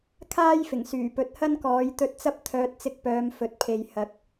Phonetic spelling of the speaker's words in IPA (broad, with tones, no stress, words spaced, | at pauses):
kʰaː˥jfɪ˨˩ŋsyː˨˩ pɵ˨˥t̚hɐ˥nkɔː˨˥jt̪ɵ˧t̚ t͡sɐ˥p̚t̪ʰœː˧t̚ t͡sɪ˧k̚pœː˨˧m fɵ˨t̚pʰe˨j hɐ˨˥k̚